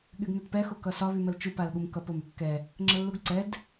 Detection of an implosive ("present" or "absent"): present